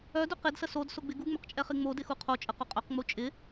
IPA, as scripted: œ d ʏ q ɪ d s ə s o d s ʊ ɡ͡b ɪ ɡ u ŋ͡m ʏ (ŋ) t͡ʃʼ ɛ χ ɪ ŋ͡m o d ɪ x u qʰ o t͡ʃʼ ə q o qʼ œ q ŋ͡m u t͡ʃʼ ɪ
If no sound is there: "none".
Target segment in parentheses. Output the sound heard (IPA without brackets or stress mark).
q